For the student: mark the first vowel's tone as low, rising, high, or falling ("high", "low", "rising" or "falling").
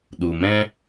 low